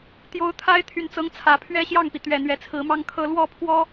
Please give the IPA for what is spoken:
t̪ j o˧˥ ʊ̯ t̪ʰ a˧˥ ɪ̯ t̪ʰ y˨˩ n t͡s ɤ˧˥ ŋ t͡sʰ ä˨˩ pʰ ɥ ɛ˥ ɕ j ɑ˥˩ ŋ p i˩ t̪ ɥ ɛ˨˩ n̪ ɥ ɛ˧˥ t͡sʰ ɹ̩˧˥ m ɑ˥ ŋ kʰ ɤ˥ l w ɔ˥˩ pʰ w ɔ˥

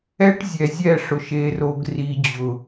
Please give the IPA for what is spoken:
ɛ˦ ʈ zʲ ɛ˨ zʲ ɛ˦˨ ʂ ʊ˨ ʃ e˨ r o˨ ɡ r i˨ d͡ʑ ʊ˨

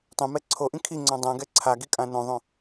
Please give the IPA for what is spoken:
tˤ ẽ m ɛ ǀʰ o ʔ ĩ kʰ i ŋ͡ǀ ɔ̃ dˤ ɛ̃ ɡ ɛ ǀʰ a ɡ i kʼ ã n õ ðˤ õ

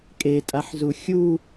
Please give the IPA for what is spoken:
kʼ e tʼ a ħ z u xʲ u

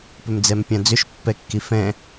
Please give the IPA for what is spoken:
p ʏ m d͡z ɛ m pʲ ã d͡z ʏ ʃ pː ɛ kː i f ɛ̃

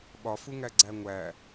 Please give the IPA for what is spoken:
ɓ ɒ f u ŋ æ ɡ͡ǀ æ ŋʷ æ

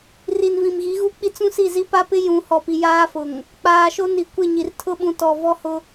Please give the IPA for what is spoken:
r i˨ n v ĩ˨ m ɣ i˨˦ ɣ u˦ k͡p i˦ t͡s ũ˦ s i˦˨ z i˦ p a˦ p ɪ˦ j ũ˨˦ h ɔ˨ p i˨ j aː˦ f ʊ˨ ŋ | k͡p aː˨ ʃ o˦ n i˨ kʷ ɪ˦˨ ɲ i˨ r tʰ ʊ˦ ɓ ũ˨ t ɔ˨ v ɔ˦ h ʊ˦

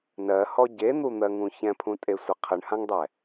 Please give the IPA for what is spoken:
n ɜ h ɔ ɟ e n̪ u n̪ ɜ ŋ ũ ç ɛ̃ pʰ ũ tʼ e sʷ ɘ qʰ ɨ ɳ h ã ŋ dˤ ɛ

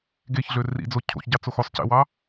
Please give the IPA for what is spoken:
ɡ e ç ɮ ø r ḭ d͡z o cʰ o̰ ç ɟ ɑ t͡s o x o sˤ c ḛ w ɑ

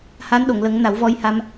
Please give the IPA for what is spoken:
h a˧˥ n ɗ o˨˩˨ ŋ l ə˨˩˦ ŋ n a˨˩˦ w v ɔ˧ j h a˧ m

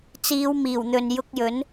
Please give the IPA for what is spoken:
t͡s iː˨˧ w m iː˨˩ w n̪ ɵ˨ n j ʊ˧ k̚ j ɵ˨˥ n

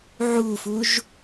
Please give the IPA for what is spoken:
ʕ u f u ʒ

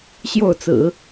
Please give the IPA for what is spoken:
ɕ j o˥˩ ʊ̯ t͡s ɹ̩˨˩˦

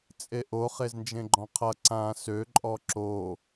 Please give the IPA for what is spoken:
t͡sʼ e ʔ o χ e z n d͡ʒ ẽ ɡ͡ǃ ɔ̃ qʰ ʌ ǀ ã s ø ǃʼ ɔ ǁ o

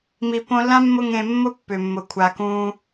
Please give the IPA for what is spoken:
m i˨ p õ˧ lː ã˦ mː ʊ˧ ŋ ẽ˨ mː ʊ˦ pː ʏ˨ mː ʊ˨ kʷʰ a˨ k ũː˧

